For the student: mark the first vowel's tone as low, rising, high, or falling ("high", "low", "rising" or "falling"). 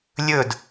falling